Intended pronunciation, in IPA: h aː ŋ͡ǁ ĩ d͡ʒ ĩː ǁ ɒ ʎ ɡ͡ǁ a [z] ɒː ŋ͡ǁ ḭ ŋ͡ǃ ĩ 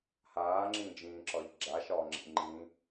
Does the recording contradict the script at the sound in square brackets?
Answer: yes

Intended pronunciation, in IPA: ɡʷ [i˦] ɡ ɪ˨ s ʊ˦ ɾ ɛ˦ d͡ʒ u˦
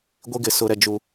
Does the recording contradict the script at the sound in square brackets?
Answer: no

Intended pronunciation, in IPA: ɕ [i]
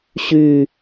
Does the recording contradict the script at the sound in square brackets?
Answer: yes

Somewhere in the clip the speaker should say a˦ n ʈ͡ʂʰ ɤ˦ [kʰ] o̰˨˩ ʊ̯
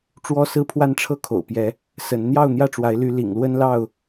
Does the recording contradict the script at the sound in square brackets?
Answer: no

